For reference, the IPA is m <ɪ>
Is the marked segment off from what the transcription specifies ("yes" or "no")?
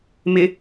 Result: no